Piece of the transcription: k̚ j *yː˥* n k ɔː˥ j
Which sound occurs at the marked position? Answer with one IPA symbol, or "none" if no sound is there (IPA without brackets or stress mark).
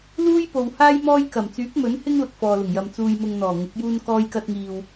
uː˥